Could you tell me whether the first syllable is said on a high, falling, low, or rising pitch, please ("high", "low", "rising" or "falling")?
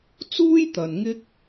high